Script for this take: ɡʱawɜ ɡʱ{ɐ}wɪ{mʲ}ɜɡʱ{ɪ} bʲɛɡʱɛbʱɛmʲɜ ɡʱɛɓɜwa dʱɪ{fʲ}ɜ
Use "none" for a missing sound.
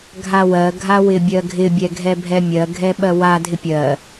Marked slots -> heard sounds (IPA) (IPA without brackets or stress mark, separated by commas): a, bʲ, ɪ, pʲ